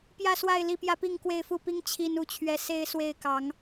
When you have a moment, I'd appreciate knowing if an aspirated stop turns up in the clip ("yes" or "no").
yes